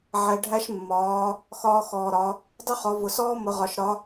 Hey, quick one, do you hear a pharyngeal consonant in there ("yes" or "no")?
yes